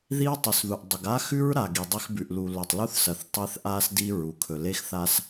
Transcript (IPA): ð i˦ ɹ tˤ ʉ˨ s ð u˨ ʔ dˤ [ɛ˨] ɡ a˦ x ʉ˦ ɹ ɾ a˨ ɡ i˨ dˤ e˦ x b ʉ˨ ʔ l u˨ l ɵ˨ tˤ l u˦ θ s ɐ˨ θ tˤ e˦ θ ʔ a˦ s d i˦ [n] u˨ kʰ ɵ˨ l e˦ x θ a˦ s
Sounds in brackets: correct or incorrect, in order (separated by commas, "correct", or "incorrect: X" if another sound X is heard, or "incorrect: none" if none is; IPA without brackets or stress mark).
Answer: incorrect: ɨ˨, incorrect: ɹ